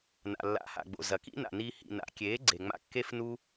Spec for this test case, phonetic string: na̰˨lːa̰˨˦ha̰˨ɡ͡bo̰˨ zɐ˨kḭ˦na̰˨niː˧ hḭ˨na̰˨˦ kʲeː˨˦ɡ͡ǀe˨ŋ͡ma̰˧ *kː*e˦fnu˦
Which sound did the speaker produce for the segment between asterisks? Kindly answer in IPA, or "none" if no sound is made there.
kː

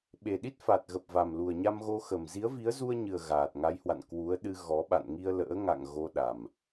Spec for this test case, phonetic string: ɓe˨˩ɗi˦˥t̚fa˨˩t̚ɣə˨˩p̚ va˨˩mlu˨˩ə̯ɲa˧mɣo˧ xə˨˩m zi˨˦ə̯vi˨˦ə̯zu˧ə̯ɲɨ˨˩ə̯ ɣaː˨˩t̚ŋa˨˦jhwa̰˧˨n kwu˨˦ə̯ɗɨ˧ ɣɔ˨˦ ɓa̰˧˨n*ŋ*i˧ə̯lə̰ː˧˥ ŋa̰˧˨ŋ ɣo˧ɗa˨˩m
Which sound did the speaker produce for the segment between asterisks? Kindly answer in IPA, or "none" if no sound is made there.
ŋ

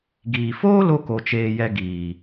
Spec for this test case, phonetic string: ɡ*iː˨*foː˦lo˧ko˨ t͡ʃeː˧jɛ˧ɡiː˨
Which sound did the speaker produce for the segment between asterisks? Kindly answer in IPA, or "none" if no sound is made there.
iː˨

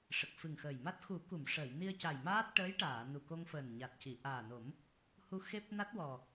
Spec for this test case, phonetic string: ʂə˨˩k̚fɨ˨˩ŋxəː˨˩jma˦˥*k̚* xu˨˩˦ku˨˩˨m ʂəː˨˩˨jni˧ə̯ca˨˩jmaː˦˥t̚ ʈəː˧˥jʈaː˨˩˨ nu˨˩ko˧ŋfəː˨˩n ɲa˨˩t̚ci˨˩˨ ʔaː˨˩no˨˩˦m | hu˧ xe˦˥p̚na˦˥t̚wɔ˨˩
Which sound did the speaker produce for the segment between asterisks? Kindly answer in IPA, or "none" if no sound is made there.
t̚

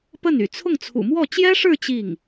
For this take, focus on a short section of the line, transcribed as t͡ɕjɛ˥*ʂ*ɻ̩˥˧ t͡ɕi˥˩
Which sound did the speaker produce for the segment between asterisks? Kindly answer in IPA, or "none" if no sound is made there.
ʂ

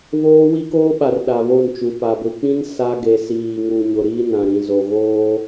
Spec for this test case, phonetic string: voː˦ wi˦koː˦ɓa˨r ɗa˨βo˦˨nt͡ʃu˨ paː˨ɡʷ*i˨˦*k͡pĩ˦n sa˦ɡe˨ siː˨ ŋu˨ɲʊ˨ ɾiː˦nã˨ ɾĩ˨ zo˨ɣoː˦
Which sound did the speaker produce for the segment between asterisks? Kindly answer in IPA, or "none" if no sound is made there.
i˨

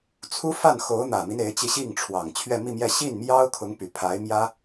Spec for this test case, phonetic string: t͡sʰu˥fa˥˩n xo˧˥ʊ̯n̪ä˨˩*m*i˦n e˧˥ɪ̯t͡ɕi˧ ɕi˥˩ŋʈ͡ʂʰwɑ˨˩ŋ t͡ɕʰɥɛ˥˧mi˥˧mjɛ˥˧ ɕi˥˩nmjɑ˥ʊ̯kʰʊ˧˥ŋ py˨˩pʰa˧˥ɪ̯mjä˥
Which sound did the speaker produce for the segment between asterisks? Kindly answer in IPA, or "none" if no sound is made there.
m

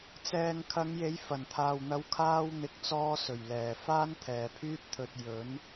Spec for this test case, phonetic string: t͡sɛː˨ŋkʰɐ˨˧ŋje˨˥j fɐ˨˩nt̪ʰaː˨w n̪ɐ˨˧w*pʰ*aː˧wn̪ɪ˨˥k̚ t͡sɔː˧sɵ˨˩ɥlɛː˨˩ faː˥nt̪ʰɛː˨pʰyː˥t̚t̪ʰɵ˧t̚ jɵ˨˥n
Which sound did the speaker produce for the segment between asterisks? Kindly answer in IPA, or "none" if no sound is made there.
kʰ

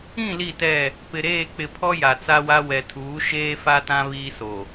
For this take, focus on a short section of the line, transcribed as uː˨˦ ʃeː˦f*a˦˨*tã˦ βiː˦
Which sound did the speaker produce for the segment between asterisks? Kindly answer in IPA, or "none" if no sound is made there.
a˦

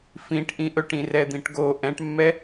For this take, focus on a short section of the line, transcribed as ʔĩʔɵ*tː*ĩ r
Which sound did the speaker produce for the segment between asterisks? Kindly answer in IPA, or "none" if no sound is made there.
ʈ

